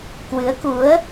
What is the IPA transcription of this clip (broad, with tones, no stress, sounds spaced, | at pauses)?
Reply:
k w ɨ˨˦ ə̯ k u˨˦ ə̯